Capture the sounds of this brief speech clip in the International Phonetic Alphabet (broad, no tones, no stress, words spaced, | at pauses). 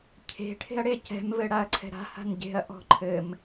cʰe̤ ʈʰe̤ɐ̯ɽecɛ̤m vɘɽaɐ̯ǀʰɛ̤ɾa̤ ha̤nɟe̤ɐ̯ ʔɔ̤ǃʰɘm